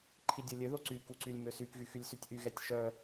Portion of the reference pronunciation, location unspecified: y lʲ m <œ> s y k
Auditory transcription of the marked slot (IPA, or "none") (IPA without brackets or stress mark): ø